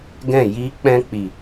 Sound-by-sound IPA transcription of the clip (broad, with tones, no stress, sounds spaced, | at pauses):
ɡ ɛ̃˦˨ j iː˦ k͡p ɛ̃˦ k͡p i˨